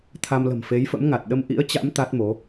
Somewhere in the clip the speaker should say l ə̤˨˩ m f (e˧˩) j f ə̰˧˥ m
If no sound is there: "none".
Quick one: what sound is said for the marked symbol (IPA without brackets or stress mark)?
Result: e˨˦